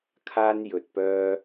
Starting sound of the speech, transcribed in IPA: kʰ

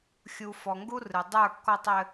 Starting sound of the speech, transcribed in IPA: xʲ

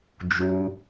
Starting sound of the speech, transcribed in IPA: d͡ʒ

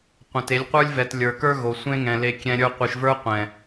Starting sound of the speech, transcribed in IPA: qʷ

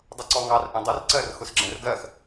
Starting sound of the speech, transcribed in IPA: dˤ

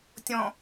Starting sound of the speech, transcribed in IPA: tʲ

